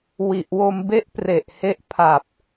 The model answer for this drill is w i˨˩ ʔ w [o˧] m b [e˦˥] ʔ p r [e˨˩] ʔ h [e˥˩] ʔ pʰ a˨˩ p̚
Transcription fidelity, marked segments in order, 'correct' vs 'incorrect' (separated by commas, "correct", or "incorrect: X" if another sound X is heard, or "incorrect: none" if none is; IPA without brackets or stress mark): correct, correct, correct, incorrect: e˦˥